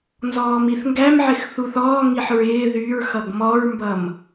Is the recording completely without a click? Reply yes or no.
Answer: yes